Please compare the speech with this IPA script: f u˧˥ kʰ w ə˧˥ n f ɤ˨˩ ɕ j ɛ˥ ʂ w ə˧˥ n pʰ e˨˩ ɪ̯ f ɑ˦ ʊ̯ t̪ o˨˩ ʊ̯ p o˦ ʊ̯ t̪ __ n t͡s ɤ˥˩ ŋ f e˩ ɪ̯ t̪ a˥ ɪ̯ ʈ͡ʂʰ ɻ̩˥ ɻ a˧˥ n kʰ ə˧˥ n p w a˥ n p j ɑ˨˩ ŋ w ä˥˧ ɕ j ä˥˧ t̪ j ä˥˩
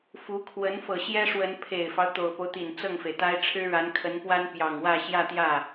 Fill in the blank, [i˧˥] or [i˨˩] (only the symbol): i˨˩